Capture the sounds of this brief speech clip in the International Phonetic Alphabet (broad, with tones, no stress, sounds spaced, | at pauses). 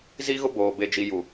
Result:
z i˦ ɣ ʊ˦ b oː˨ b e˨ d͡ʒ i˨ j u˨